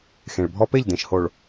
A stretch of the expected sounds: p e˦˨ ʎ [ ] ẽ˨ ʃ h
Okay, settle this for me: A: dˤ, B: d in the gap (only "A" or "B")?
B